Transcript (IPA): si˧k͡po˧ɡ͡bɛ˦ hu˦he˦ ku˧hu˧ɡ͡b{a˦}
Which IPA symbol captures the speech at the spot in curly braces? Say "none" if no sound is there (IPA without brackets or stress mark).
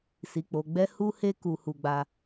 a˧